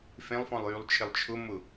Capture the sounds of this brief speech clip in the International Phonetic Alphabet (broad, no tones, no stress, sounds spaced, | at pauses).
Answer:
f ẽ lˠ f ɔ̃ lˠ j y lˠ t͡ʃʰ ɪ lˠ t͡ʃʰ ʊ m ʊ